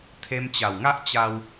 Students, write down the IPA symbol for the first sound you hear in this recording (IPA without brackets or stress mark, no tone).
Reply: t̪ʰ